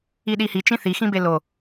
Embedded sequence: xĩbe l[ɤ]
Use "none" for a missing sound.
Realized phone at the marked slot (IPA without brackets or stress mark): o